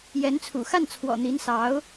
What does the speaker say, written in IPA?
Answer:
jɛ˧˥nt͡sʰṵ˨˩ xa˥˩nt͡sʰwɔ̰˨˩ n̪i˧˥nsɑ˧˥ʊ̯

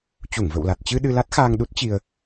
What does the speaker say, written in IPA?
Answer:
t͡ɕu˧˩ŋvə̰˧˨wla˨˩t̚ t͡ɕɨ˧ ɗɨ˧la˦˥t̚xaː˧ŋɗu˦˥t̚ t͡ɕi˧ə̯

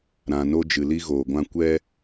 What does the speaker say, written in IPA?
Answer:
ɾã˨no˧ d͡ʒɨ˨li˧ɣoː˨ɡʷã˧ kʷɛ˧

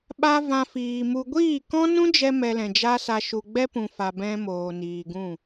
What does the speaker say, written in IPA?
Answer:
ɓa˦vã˧fiː˨mu˧ ɡʷiː˦˨kɔ̃˦ nũ˦d͡ʒɛ˧ mɛ˧lɛ̃˨d͡ʒa˦sa˧ ʃu˨ɡ͡bɛ˦pũ˨fa˨ bɛ̃˦moː˨ niː˨ɡũ˦˨

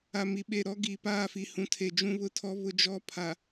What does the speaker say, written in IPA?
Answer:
a˨mi˨ɓe˨ɾɔ˦ ɡi˨ paː˦˨fi˨hũ˨tʰe˨ d͡ʒũ˦βʊ˦tʰɔ˦ βʊ˦d͡ʒɔ˦ pʰa˨

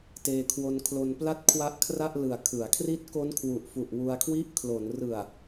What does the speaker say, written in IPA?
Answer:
teː˧kʰwo˧nkʰlo˧npla˥˩t̚ kʰwa˦˥ʔkʰra˥˩ʔlɯ˨˩a̯ kʰɯ˩˦a̯ kʰri˦˥t̚ko˦˥nkʰwu˨˩ʔfu˨˩ʔ wu˧a̯kʰwi˥˩ʔ kʰlo˩˦n rɯ˨˩a̯

